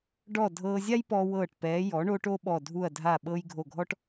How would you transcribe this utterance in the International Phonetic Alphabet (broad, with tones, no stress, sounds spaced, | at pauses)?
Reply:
ɖ ɔː˧˩ dʱ ɤː˧ zʲ a˥ j p ɔː˧ w ɤː˧˩ ʈ p ɛː˩˧ j ɔ˩˧ ɳ o˧ ʈ o˥ ɓ ɔ˧˩ dʱ u˧˩ ɐ̯ dʱ a˧˩ ɓ ɤ˧ j ɡʱ o˧˩ ɡʱ ɔ˥ ʈ